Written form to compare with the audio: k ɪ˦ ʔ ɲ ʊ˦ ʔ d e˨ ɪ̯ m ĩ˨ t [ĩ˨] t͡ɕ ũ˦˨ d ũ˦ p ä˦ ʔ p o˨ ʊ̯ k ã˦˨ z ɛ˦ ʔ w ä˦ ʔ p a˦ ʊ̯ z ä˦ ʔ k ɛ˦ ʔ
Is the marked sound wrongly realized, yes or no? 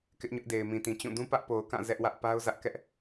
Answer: no